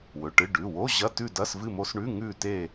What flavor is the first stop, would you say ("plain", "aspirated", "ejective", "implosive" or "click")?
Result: plain